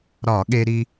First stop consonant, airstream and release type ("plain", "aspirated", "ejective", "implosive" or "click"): implosive